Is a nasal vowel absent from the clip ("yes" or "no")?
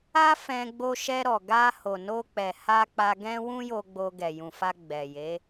no